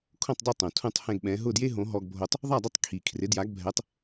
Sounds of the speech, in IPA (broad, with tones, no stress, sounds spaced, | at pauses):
kʰ õ˥˩ tˤ dˤ e˥˩ tˤ õ˩ tʰ ũ˥˩ tˤ h ɛ̃˥˩ ɡ ɓ ɛ̃˩˥ ɦ ʊ˥˩ d j e˥ ɦ õ˩˥ ɦ ɔ˧ ɡ bʱ o˧ tˤ | ðˤ a˥˩ dˤ ʊ˥˩ tˤ kʰ i˩ kʰ r ɪ˩˥ d j a˩˥ ɡ bʱ ɛ˩˥ tˤ